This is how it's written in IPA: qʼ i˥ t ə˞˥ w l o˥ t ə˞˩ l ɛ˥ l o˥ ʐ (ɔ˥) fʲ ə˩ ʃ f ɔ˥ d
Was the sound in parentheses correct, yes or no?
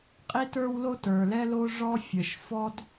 yes